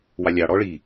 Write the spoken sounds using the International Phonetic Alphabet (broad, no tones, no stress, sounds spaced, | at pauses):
w ɑ lʲ ɑ ɽ ɔ ɭ i